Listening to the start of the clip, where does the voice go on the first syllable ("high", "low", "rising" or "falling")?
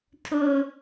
high